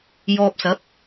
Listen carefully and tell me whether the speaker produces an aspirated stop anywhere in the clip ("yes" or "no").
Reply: no